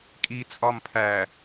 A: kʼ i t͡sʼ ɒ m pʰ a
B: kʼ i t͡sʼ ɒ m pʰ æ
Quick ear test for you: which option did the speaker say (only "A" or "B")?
B